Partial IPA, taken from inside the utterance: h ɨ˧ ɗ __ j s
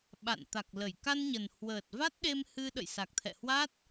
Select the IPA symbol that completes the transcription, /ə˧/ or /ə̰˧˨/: ə̰˧˨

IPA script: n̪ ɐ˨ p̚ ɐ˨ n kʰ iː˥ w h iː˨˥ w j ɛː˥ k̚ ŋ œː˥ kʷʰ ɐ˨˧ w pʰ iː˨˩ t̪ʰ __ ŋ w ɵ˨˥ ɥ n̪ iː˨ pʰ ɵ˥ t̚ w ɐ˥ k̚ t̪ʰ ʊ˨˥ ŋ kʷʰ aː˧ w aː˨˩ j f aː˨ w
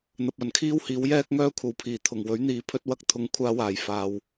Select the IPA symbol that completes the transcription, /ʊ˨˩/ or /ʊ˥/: ʊ˨˩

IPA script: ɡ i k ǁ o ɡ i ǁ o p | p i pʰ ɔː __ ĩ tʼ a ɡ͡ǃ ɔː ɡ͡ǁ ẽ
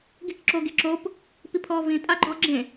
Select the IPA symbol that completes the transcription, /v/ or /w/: v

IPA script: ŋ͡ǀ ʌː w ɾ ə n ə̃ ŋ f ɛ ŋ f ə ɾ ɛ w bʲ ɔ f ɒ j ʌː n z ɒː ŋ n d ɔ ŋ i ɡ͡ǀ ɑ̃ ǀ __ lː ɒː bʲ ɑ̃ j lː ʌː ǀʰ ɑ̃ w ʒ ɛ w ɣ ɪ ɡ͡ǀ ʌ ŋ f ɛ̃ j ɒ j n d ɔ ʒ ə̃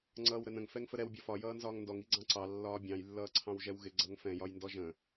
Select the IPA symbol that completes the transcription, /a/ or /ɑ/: ɑ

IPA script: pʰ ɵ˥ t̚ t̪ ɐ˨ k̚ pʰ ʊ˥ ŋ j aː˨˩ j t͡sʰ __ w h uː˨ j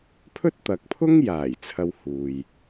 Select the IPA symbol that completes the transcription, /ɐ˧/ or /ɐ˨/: ɐ˧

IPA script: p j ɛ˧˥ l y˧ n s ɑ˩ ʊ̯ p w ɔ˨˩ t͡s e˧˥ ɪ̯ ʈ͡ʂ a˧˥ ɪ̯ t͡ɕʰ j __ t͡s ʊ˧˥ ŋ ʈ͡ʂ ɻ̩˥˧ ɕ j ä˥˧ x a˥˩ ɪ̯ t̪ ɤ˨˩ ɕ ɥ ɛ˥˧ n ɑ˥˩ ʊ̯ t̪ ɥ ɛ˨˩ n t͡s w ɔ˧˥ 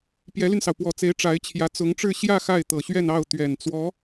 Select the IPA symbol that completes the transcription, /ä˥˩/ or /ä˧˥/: ä˧˥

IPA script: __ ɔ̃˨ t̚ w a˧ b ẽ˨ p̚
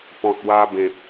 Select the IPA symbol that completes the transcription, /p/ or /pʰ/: p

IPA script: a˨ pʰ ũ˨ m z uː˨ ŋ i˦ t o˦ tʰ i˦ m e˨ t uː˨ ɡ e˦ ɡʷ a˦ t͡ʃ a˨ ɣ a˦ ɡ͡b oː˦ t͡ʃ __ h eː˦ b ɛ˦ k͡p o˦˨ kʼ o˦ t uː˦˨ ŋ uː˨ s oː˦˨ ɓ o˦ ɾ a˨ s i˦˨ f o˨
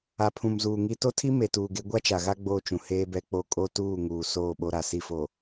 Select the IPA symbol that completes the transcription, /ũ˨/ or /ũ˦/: ũ˨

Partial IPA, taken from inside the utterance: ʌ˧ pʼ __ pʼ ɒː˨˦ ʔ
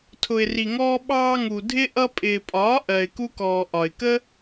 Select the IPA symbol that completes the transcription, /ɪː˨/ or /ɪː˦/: ɪː˨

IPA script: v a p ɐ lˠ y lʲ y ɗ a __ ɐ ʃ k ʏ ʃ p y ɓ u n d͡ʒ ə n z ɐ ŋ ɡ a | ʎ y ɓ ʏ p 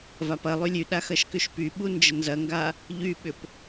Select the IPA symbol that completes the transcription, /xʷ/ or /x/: x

